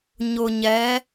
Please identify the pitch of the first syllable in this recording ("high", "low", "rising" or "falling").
low